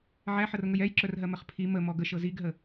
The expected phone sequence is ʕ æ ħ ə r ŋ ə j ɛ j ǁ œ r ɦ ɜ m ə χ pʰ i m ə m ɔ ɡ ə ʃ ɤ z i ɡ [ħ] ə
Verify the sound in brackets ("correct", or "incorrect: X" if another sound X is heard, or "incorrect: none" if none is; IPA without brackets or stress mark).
incorrect: ɦ